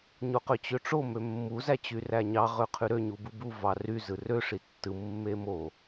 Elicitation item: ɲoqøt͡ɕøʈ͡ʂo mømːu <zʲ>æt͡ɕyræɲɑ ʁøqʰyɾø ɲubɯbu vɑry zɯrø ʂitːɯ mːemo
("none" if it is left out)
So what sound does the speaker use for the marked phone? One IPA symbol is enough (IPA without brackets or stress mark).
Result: z